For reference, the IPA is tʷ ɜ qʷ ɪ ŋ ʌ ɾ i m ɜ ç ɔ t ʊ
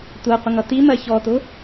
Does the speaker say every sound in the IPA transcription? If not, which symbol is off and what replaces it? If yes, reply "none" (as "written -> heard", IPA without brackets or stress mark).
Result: ɾ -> t